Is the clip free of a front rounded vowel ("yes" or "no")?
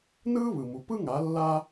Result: yes